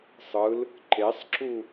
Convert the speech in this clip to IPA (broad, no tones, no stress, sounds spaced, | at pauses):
sˤ ɯ l | ǃ e sˤ ǁ u